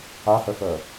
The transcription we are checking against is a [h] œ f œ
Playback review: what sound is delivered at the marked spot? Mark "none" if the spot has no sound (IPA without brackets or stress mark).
h